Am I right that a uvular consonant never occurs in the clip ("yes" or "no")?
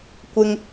yes